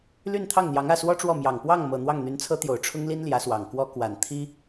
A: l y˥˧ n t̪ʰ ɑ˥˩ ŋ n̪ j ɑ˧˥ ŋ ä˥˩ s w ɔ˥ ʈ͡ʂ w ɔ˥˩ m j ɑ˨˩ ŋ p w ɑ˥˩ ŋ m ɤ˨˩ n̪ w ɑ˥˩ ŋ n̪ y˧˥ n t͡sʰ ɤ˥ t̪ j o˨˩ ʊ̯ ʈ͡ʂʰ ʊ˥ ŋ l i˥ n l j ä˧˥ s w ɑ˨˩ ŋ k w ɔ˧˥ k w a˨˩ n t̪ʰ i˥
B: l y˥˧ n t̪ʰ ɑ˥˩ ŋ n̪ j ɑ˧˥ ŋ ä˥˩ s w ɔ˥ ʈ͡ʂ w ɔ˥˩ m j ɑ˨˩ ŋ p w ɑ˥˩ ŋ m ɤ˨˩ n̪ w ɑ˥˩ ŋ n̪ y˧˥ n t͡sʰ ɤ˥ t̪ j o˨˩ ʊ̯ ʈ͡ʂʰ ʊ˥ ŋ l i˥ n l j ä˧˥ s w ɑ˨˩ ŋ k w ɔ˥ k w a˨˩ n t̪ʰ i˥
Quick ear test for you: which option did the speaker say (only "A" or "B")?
B